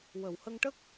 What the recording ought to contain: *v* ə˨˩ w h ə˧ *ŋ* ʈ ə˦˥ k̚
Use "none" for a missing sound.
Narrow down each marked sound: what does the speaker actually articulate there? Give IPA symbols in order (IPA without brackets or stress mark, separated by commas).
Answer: w, ŋ